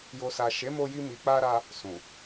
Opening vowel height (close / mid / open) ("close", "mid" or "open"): mid